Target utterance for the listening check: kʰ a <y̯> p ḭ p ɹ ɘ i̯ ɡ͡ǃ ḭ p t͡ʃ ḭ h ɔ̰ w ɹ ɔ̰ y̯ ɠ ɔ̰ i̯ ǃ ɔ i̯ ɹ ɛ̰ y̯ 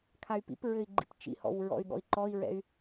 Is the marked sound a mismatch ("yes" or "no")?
no